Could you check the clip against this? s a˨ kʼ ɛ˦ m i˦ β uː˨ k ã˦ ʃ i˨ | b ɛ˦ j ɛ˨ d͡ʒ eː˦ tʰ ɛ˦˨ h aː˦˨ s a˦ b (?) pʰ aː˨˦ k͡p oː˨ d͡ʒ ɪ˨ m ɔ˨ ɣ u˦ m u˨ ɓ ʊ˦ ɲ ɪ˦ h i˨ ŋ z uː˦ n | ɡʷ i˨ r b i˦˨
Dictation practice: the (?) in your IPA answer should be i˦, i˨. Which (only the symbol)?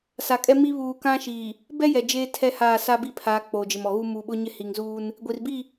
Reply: i˦